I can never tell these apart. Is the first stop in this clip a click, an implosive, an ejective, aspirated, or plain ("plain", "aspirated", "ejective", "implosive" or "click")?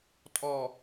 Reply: ejective